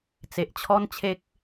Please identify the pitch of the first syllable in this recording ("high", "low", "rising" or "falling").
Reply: low